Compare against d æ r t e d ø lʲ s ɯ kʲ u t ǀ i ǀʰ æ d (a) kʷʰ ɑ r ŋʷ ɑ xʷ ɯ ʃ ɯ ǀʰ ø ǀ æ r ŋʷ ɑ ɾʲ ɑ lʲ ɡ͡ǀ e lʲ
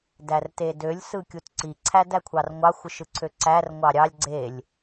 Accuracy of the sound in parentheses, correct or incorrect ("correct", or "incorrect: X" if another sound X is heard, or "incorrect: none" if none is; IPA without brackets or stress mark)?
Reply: incorrect: æ